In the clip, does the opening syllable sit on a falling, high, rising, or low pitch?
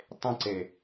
high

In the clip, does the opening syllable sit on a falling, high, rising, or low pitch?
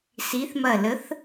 rising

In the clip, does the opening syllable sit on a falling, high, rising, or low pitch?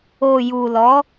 low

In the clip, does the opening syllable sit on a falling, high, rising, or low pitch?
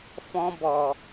high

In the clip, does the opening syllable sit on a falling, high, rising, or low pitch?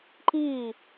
falling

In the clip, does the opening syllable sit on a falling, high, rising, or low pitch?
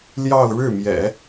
falling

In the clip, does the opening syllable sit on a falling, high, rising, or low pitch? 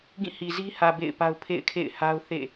falling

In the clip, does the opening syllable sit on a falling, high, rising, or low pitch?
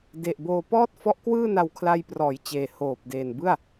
low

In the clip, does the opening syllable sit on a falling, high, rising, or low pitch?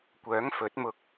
rising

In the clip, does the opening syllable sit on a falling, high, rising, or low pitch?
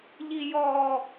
low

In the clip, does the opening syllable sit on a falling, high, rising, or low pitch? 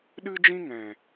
high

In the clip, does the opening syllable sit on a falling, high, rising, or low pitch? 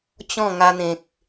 falling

